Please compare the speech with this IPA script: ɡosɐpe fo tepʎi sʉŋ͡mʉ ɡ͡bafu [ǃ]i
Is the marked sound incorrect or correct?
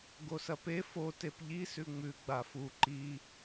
correct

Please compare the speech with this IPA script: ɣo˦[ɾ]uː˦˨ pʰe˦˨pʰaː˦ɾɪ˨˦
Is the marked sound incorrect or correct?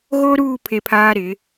correct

